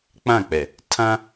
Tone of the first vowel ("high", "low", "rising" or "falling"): falling